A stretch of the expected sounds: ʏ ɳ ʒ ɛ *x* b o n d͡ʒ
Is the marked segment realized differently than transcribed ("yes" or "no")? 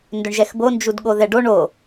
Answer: no